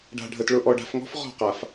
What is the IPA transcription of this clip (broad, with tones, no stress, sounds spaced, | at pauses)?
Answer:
ɖ a̤˨ ɖʱ ə˨ t ɭ ʊ˨ ʔ ɔ˨ ɖ a̤˨ f ŋ ɔ̤˦ f ʁ ɔ̤˦˨ q a˨ f